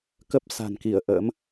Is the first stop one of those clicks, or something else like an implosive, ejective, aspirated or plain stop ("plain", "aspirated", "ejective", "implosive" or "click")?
plain